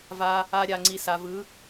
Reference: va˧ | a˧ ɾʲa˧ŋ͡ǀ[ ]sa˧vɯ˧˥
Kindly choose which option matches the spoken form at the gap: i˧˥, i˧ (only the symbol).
i˧